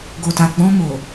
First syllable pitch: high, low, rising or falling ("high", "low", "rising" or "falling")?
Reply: low